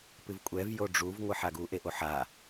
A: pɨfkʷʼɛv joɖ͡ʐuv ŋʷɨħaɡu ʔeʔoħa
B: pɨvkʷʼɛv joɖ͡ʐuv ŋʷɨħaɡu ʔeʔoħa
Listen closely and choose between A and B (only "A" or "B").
B